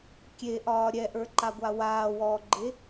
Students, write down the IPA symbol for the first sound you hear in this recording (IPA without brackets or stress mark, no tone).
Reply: kʲ